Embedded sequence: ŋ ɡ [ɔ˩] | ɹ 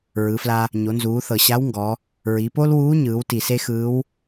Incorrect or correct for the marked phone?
incorrect: ɔ˩˧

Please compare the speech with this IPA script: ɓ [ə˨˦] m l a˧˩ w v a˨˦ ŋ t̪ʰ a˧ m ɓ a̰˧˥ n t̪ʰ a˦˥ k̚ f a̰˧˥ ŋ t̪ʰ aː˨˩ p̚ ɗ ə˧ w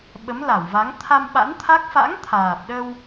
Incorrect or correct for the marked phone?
correct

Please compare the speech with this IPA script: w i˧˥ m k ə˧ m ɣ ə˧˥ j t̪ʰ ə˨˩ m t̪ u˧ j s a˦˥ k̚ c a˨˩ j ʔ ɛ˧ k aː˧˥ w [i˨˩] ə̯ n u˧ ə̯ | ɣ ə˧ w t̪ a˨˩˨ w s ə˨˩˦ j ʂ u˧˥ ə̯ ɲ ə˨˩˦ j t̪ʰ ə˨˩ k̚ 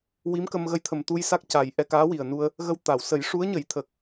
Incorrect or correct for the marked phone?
correct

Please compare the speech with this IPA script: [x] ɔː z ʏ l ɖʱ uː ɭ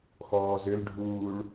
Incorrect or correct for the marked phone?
correct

